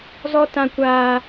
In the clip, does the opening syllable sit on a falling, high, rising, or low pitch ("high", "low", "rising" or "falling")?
high